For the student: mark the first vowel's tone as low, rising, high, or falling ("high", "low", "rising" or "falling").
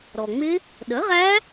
low